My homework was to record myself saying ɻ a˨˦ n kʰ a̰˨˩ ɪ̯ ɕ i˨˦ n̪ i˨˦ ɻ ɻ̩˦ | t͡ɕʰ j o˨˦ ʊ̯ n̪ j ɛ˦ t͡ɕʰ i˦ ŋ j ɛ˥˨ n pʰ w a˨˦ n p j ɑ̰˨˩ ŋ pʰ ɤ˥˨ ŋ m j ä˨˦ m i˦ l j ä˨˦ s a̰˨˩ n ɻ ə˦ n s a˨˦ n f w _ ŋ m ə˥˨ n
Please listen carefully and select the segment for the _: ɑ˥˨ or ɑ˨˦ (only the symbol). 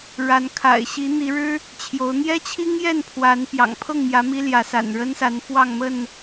ɑ˥˨